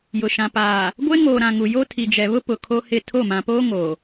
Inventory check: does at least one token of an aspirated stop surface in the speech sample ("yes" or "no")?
yes